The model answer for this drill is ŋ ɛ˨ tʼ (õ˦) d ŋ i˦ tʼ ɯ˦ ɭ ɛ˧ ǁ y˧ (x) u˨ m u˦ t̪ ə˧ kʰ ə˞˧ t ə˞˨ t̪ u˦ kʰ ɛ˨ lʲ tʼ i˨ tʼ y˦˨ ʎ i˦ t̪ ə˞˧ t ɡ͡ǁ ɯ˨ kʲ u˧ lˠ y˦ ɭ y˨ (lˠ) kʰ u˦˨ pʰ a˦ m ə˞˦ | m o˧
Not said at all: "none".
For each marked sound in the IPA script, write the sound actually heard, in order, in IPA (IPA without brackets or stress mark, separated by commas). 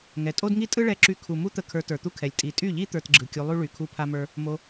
o˦, kʰ, none